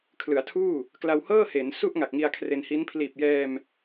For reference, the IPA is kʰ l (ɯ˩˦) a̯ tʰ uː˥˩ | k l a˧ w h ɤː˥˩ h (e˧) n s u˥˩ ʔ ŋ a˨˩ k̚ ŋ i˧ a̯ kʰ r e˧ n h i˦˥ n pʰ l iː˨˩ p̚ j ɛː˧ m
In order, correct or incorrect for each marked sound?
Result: correct, incorrect

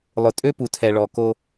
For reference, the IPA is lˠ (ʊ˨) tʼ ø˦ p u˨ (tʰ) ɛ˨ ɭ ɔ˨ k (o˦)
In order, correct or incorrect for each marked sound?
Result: correct, correct, correct

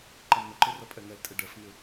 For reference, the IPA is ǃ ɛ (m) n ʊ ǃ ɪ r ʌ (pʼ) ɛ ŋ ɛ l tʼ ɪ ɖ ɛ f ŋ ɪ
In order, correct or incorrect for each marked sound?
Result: correct, correct

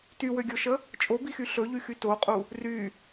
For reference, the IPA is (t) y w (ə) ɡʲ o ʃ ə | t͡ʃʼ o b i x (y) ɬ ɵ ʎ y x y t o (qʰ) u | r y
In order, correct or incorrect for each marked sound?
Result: correct, incorrect, correct, incorrect

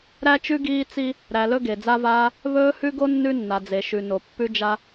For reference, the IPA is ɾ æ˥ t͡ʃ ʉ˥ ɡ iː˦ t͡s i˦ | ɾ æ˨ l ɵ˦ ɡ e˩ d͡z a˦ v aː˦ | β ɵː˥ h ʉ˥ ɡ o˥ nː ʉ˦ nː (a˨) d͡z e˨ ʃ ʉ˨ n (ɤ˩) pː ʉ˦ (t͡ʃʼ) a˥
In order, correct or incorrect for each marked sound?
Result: correct, incorrect, incorrect

